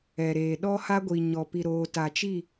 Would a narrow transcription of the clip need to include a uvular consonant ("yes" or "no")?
no